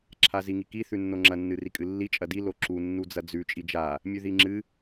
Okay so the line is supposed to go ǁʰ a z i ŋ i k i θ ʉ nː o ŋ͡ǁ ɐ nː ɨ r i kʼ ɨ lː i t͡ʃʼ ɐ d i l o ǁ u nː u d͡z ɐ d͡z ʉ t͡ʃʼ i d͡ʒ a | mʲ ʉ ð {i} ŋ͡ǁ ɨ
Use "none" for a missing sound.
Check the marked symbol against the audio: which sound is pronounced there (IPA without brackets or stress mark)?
i